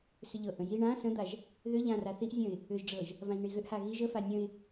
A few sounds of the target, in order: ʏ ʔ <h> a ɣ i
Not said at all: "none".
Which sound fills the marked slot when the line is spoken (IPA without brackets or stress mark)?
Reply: h